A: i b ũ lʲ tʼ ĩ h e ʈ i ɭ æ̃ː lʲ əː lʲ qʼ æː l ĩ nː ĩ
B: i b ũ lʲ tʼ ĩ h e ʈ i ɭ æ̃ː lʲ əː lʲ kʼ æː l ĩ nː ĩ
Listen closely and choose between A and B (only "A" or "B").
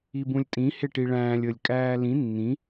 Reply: B